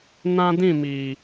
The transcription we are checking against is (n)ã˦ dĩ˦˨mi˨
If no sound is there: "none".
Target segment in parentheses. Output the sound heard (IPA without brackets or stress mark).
n